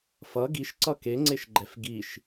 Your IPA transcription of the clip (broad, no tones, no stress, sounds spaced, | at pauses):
f ʌ ɡ i ʃ ǀ ʌ k e ŋ͡ǀ e ʃ ɡ͡ǃ ɛ f ɡ i ʃ